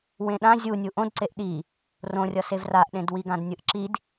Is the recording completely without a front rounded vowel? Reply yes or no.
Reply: yes